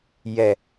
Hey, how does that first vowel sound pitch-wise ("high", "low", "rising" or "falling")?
low